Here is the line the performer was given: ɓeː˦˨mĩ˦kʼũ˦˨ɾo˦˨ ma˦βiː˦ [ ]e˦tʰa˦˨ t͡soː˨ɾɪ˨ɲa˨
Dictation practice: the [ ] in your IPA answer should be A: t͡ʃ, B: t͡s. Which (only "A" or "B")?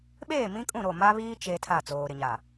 A